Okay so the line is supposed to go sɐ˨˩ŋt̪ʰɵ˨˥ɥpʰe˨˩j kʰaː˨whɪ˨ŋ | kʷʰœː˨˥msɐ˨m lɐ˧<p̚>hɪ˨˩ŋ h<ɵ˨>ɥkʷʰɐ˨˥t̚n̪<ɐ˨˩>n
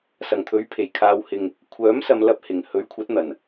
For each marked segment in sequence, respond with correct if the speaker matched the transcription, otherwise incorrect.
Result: correct, incorrect: ɵ˨˥, correct

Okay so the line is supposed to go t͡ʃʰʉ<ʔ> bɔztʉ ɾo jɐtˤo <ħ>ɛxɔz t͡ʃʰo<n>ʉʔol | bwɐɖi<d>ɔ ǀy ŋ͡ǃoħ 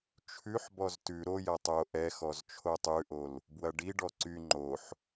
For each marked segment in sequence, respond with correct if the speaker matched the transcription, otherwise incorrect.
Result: incorrect: ħ, incorrect: ʔ, incorrect: tˤ, incorrect: ɖ

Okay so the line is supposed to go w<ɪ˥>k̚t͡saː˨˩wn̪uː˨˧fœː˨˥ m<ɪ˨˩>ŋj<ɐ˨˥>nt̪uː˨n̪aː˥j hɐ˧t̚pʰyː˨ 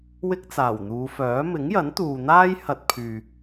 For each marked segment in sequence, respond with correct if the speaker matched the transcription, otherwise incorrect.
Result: correct, incorrect: ɪ˨˥, correct

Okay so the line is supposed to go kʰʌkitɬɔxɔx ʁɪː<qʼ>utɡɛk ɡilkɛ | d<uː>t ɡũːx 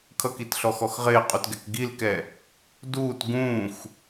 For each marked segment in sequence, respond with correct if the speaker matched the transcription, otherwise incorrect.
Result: correct, correct

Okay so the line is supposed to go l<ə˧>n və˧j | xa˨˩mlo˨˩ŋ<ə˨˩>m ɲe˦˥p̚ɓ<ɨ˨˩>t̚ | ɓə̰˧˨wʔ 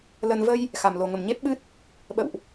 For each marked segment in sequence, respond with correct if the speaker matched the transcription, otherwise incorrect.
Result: correct, correct, incorrect: ɨ˦˥

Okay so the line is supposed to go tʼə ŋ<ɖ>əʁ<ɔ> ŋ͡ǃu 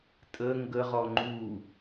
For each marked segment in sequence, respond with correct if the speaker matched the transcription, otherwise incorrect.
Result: incorrect: ɡ, correct

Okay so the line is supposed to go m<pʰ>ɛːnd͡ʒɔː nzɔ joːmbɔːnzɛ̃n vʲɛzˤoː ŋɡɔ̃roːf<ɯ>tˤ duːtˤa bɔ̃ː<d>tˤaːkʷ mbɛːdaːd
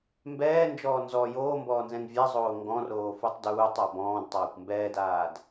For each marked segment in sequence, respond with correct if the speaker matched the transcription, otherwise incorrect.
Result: incorrect: b, incorrect: u, correct

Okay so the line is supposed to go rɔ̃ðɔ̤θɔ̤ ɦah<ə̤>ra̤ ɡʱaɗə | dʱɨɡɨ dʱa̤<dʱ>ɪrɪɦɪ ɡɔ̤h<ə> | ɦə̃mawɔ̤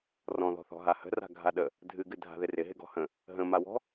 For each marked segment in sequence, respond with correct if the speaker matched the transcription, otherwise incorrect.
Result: correct, incorrect: ð, incorrect: ə̃

